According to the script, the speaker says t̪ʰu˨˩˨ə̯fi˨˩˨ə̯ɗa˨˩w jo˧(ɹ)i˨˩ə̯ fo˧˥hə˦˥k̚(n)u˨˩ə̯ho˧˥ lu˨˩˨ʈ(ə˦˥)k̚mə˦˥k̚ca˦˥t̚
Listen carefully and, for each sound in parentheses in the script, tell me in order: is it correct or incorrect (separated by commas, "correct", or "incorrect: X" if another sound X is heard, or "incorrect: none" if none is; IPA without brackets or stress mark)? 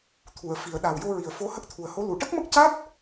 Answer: correct, incorrect: t̪ʰ, correct